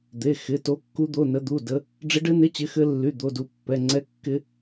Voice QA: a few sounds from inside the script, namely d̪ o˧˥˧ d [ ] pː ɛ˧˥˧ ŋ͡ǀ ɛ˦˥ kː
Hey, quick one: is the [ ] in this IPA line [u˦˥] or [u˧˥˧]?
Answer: u˦˥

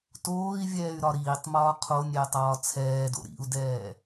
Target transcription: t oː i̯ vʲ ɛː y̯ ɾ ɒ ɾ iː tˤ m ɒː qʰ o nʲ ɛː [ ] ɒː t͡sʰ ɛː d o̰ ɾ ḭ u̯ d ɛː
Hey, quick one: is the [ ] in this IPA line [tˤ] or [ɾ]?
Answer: tˤ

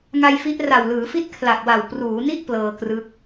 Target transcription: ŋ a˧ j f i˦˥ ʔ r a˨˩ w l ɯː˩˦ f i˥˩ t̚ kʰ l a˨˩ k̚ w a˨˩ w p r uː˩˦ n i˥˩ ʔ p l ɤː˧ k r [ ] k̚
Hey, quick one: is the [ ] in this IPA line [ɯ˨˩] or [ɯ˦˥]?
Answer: ɯ˦˥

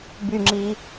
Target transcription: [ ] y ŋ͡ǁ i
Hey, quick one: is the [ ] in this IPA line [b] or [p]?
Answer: b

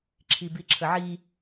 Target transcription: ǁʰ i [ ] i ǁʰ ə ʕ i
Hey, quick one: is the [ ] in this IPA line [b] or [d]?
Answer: b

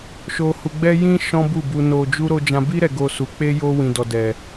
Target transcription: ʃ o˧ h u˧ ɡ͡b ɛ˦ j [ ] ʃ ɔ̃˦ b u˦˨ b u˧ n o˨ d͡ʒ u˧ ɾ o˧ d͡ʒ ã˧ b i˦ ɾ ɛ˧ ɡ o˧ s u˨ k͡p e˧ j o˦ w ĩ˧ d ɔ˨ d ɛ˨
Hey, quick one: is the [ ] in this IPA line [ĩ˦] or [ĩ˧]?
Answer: ĩ˦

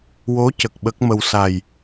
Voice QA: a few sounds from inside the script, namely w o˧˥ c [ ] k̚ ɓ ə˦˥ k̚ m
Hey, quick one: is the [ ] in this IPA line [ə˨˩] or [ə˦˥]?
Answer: ə˨˩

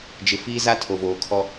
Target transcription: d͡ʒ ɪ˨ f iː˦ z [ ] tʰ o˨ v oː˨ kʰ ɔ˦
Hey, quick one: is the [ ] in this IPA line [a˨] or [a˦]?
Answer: a˦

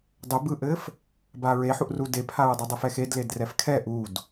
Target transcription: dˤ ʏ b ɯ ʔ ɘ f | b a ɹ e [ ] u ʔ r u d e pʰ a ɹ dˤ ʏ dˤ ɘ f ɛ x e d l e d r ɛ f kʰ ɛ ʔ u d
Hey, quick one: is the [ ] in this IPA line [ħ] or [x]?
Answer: ħ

